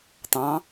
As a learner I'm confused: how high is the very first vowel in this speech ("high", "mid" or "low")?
low